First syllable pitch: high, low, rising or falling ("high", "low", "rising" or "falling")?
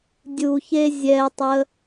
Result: low